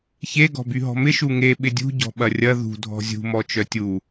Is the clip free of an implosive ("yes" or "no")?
no